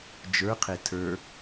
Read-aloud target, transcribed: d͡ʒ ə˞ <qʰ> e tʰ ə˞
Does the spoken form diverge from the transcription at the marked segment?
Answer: no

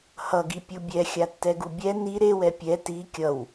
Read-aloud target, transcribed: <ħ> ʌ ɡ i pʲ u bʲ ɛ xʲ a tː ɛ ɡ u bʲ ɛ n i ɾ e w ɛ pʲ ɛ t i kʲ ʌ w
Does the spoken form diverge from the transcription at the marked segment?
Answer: yes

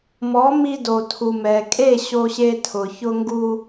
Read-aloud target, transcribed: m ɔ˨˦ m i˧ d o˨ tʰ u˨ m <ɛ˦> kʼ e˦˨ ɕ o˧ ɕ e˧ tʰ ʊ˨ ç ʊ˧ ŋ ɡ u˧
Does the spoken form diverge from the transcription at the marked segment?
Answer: yes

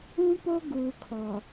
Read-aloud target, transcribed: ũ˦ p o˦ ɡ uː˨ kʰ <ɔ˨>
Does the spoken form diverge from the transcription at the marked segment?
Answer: no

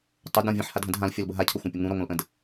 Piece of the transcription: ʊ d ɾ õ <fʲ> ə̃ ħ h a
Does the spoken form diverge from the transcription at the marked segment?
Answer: yes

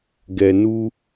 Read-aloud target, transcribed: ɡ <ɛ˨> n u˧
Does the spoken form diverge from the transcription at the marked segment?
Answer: no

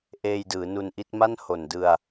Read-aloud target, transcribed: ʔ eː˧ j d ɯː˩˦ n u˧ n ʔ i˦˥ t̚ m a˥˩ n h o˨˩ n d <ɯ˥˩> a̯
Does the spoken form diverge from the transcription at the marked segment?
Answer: yes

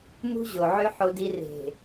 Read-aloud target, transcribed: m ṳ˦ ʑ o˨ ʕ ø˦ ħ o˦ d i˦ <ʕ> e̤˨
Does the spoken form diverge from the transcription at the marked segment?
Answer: yes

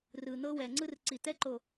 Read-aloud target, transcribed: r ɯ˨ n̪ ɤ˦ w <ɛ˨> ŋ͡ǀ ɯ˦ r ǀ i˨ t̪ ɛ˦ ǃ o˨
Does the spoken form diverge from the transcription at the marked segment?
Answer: no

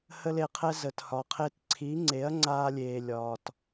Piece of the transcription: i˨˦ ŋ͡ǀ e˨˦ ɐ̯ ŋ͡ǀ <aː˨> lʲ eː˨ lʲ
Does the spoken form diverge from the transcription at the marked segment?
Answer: yes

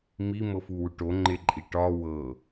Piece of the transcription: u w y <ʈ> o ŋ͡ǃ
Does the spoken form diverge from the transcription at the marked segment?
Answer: no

